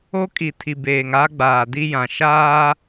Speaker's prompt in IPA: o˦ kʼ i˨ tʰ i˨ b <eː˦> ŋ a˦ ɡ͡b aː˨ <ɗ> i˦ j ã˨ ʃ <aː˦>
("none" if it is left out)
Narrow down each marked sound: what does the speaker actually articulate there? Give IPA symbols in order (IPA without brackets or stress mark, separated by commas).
eː˨, d, aː˦